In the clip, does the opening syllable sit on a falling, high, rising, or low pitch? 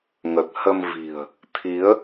low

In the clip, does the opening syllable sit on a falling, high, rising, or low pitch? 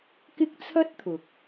high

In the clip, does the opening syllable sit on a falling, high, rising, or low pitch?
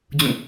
falling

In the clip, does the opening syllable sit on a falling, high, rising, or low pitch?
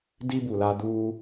high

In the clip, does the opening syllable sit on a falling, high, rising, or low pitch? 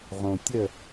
low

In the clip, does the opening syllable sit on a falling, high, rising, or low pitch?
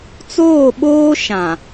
falling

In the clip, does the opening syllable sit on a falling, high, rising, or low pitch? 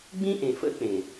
high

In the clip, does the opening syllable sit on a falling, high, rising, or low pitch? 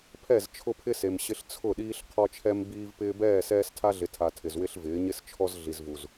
falling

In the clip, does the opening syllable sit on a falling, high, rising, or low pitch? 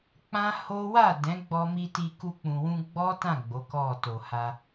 high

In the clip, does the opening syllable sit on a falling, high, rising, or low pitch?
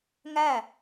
falling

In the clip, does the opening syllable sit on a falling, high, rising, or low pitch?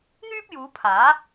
high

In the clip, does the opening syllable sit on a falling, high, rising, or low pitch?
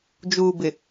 low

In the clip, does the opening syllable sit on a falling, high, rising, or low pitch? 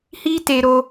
high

